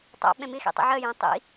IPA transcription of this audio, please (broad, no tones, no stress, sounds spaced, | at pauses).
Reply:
tˤ æ̰ ɓ ɛ̃ m ɪ x ḭ tˤ ɛ̰ ʕ ɜ j æ̃ tˤ ḭ